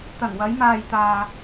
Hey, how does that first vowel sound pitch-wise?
low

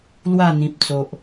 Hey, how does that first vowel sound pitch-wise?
falling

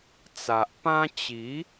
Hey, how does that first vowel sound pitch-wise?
low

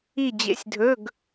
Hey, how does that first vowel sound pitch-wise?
falling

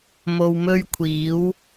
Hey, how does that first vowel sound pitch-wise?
low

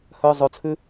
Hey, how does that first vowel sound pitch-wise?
low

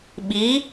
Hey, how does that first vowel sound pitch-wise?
rising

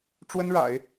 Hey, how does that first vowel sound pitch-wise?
high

